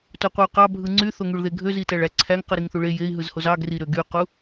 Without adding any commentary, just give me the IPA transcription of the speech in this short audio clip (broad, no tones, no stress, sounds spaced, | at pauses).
t o qʷ e u̯ q ɑ bʱ ɯ ŋ͡ǀ y θ o ŋ y ɭ ð e ɡʱ ø z i t æ ɭ æ ǀʰ æ ŋ q ɯ ɾ i ŋ θ u ɭ e j e i̯ ɦ ɯ z h o z ɑ ɡ r i ɾ ø ɡ y q u